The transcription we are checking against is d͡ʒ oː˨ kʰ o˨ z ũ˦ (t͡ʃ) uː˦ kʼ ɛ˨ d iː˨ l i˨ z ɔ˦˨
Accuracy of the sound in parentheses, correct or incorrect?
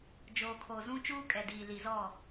correct